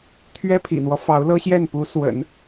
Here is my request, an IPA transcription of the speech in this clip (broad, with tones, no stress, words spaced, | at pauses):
t̪ʰɥɛ˥pʰḭ˨˩n̪wɔ˦ fɑ˧˥ʊ̯lɤ˥ɕjɛ˥˩n pu˧˥swə̰˨˩˦n